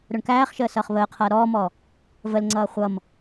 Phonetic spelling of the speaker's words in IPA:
ɾ ʊ ɳ k æː χ ʃ əː s ʌː χ β əː qʰ ʌː ɾ ɔː m ɔ | v ə l ŋ͡ǀ ʌː χʷ ʌ m

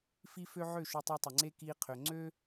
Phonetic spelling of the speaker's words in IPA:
f i˦ f ø˦ ʕ ø˦˨ ʃ ʊ˧ tˤ ø˧ tˤ ɪ˨ ŋ͡ǀ e˦ k i˧ qʰ ø˨ ŋ͡ǀ ø˦

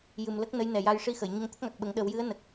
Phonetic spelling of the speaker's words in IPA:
j ɨ˨˩ m l ə˦˥ k̚ n ə˧˥ j n ɛ˨˩ j a˧ j ʂ i˧ x ə˨˩˨ j ɲ ə˧ ŋ t̪ ə˦˥ k̚ ŋ a˨˩ k̚ ɓ ə˨˩˦ ŋ ɗ ə˨˩˦ w j ɨ˧˥ ə̯ n ə˨˩ k̚

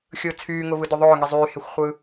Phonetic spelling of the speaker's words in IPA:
xʲ ɯː t͡sʰ yː ŋ ʊ v ɯ d ʏ ðˤ ʊː ŋ i zˤ yː h e xʷ χʷ ɯː

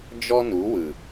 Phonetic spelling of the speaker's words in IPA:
d͡ʒ ɔ˦ n u˨˦ w ɯ˨

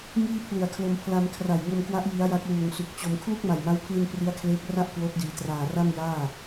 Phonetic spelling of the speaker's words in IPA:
ŋ iː˥˩ pʰ l u˨˩ a̯ kʰ l o˧ m pʰ l a˧ m kʰ r a˨˩ j ŋ o˧ m k w a˦˥ ʔ j i˦˥ a̯ j a˦˥ k̚ w uː˨˩ ŋ s u˨˩ k̚ t͡ɕ o˧ m kʰ l u˥˩ k̚ m a˨˩ j m a˦˥ w pʰ l i˧ n p r i˦˥ a̯ kʰ l eː˦˥ k̚ r a˥˩ ʔ k w oː˦˥ p̚ d iː˩˦ t r aː˨˩ r a˥˩ m j aː˥˩

